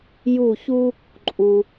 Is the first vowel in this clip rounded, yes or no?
yes